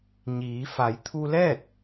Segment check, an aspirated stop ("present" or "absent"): present